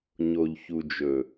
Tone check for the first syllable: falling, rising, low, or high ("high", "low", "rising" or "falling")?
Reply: low